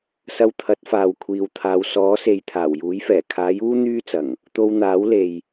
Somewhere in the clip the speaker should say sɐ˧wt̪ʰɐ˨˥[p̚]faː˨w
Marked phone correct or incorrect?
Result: incorrect: t̚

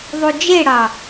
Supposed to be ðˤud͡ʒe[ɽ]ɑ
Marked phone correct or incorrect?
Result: correct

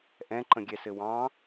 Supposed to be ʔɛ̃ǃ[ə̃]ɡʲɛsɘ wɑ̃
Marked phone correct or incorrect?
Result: correct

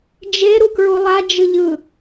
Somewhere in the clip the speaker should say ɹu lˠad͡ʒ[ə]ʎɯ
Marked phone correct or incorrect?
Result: incorrect: ɯ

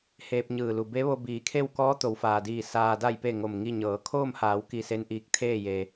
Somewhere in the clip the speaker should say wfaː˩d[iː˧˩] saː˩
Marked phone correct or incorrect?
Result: correct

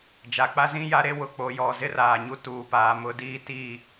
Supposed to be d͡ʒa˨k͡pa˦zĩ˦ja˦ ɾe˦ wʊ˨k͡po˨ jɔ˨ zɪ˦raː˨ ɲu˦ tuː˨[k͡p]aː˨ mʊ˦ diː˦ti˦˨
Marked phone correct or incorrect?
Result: incorrect: p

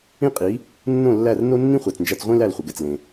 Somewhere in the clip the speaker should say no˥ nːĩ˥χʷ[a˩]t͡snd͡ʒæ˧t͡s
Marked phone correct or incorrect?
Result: incorrect: æ˩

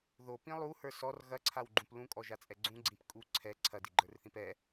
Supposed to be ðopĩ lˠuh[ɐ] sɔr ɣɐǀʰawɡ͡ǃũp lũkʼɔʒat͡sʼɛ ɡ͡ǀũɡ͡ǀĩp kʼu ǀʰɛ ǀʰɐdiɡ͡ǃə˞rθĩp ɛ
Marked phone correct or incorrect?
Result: incorrect: ə˞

